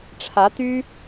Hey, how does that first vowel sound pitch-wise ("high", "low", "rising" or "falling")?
rising